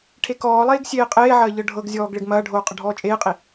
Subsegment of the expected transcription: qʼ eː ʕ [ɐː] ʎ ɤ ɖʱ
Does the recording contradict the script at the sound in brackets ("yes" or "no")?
no